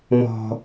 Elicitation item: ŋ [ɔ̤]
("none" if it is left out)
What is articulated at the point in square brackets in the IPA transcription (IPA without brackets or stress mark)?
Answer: ɔ̤